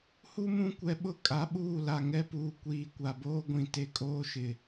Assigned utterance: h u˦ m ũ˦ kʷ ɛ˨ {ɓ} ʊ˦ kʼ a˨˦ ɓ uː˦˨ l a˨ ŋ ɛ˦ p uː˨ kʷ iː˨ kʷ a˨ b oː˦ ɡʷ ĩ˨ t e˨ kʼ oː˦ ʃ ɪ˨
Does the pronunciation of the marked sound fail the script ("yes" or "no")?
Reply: no